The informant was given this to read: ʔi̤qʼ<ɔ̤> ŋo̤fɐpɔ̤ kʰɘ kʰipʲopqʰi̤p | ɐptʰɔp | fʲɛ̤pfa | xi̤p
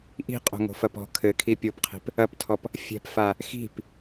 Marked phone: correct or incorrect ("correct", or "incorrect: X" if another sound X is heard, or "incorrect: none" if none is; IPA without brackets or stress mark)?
incorrect: o̤